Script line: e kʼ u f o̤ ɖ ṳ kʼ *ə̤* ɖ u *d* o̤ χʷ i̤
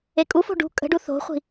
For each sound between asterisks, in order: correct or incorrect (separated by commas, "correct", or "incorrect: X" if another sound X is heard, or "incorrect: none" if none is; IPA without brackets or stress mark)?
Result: correct, incorrect: θ